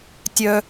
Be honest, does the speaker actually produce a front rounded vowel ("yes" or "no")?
yes